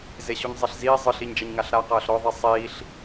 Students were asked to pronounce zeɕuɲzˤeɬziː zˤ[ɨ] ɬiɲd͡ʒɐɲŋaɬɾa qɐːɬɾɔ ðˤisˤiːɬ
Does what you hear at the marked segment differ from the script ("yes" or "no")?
no